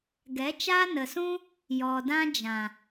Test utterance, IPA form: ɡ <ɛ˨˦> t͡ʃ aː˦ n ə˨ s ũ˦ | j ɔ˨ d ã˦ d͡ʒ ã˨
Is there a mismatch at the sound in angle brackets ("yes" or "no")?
no